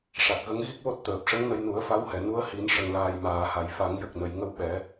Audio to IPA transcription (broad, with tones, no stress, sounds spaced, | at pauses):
ʂ a˨˩ k̚ ɣ ə˧˥ ŋ ɣ i˦˥ k̚ w o˦˥ t̚ t̪ əː˨˩ p̚ ʂ ə˧˥ ŋ n ə˧ j n u˨˩˦ ə̯ f a˧˥ w h ɛ˨˩˨ n u˧˥ ə̯ h i˨˩˦ n ʂ ə˨˩ ŋ l aː˨˩ j m aː˨˩˨ h a˨˩˨ j f a˨˩˦ ŋ j ə˨˩ k̚ n ə˨˩˨ j ŋ ə˧ w ɓ ɛ˨˩˦